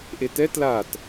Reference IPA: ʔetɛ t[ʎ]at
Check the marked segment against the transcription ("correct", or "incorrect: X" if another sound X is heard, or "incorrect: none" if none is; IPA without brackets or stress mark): incorrect: l